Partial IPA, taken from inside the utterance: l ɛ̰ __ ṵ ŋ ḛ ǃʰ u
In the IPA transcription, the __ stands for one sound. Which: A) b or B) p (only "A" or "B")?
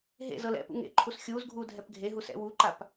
B